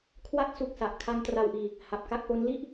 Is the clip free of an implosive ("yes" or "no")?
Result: yes